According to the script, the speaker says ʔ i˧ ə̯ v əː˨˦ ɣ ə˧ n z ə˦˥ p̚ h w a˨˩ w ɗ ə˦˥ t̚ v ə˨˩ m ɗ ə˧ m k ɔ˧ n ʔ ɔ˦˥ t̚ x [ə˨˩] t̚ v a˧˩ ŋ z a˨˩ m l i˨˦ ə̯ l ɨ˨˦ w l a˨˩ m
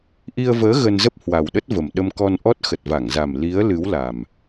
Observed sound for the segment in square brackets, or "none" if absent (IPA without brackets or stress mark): ə˨˩